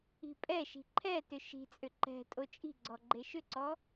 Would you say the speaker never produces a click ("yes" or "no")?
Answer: no